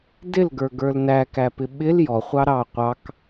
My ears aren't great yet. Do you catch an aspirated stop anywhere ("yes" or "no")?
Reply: no